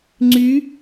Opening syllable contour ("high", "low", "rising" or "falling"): rising